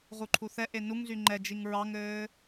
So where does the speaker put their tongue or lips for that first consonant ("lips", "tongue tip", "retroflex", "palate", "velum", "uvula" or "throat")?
uvula